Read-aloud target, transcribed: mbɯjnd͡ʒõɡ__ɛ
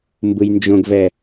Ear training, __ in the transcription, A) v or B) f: A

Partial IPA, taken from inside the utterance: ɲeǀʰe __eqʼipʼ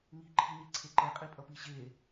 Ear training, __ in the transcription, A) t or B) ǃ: B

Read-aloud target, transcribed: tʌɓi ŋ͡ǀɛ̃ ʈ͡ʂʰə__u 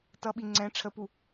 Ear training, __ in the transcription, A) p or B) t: A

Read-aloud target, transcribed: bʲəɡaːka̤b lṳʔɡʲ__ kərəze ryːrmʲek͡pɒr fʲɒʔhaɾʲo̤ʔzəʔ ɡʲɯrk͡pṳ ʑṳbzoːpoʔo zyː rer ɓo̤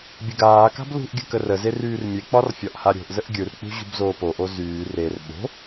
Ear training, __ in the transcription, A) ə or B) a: A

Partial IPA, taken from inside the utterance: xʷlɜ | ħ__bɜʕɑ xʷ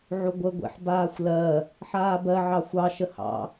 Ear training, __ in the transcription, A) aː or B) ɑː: A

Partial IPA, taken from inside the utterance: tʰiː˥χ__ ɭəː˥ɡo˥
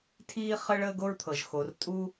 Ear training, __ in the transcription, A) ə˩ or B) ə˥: B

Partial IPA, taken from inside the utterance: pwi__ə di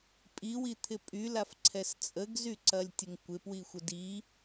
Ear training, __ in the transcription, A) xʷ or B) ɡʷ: A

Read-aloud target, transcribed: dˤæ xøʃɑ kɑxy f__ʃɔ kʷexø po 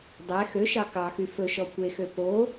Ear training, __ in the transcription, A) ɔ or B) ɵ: B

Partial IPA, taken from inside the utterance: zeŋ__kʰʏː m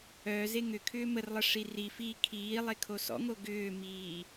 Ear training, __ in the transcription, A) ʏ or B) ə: A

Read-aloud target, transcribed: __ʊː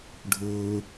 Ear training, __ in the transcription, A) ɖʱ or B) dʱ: A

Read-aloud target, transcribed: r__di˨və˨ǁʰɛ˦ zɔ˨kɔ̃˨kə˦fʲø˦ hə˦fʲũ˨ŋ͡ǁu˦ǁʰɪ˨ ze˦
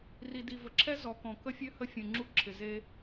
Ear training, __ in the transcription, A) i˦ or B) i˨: B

